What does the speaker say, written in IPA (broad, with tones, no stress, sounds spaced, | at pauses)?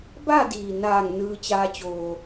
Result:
b a˥˨ d iː˩ n aː˧˩ ŋ n ɯː˧ t͡ɕ aː˧ t͡ɕ oː˩